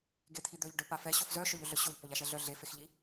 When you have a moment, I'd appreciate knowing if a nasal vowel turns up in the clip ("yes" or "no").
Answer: no